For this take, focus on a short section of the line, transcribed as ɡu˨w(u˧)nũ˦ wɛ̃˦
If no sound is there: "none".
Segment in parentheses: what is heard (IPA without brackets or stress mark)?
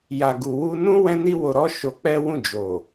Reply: u˧